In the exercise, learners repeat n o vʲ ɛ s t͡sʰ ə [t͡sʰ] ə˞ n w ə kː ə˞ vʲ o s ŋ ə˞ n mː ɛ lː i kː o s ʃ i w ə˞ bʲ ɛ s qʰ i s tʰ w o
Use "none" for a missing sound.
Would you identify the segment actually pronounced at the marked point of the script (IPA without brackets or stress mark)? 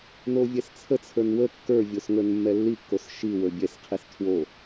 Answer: t͡sʰ